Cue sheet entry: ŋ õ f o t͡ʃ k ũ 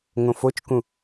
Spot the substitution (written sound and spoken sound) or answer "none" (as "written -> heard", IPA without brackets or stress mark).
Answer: none